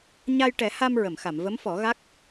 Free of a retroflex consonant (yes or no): no